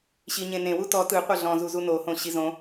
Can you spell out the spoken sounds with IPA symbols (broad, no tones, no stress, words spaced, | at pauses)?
ɕiɲẽnẽwu tɔ tɯ qʷɤɮɔ̃zuzu nohõ ɕizõ